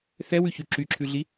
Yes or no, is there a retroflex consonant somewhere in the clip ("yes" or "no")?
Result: no